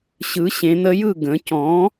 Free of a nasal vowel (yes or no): no